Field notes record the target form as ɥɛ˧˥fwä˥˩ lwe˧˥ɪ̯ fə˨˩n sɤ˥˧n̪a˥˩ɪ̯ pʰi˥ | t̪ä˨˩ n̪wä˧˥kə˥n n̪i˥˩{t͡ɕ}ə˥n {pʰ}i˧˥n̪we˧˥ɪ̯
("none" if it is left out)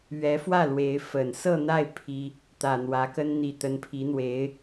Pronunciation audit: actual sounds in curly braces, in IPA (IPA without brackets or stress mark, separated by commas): t̪, pʰ